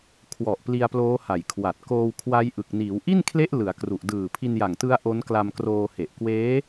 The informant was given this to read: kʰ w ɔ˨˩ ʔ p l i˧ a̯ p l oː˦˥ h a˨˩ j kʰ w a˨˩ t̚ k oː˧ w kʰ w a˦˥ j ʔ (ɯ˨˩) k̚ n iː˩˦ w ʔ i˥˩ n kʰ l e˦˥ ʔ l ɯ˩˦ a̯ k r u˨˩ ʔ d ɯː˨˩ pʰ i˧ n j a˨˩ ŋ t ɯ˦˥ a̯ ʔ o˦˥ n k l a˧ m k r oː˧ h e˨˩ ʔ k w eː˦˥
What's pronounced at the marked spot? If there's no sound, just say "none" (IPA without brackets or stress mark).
ɯ˨˩